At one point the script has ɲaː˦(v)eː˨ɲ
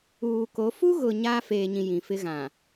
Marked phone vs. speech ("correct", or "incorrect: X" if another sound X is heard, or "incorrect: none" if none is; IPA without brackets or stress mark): incorrect: f